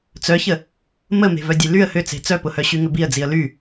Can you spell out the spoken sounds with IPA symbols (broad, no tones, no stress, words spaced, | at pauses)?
t͡sœçə | məme̤vœ dʲelyə̯ hʏt͡se̤ t͡sœpʊhœ ɕyŋʏbiə̯d͡ziə̯ ly